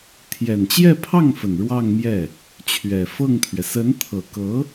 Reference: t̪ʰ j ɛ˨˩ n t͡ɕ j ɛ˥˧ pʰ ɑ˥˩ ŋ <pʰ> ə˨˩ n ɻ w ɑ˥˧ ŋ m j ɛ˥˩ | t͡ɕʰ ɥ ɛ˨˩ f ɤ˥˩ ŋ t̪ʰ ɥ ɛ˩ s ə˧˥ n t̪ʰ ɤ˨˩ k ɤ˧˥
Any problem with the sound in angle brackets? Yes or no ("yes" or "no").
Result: yes